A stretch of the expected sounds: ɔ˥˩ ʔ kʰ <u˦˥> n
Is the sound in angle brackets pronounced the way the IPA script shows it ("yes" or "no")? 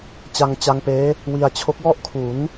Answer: no